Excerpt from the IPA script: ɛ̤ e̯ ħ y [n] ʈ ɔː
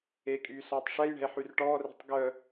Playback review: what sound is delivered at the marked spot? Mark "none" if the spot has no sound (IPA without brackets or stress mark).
r